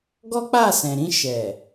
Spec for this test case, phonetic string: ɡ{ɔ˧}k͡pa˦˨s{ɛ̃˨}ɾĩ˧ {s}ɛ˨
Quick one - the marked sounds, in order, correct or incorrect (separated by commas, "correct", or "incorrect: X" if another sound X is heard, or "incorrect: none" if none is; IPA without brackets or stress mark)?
incorrect: ɔ˦, correct, incorrect: ʃ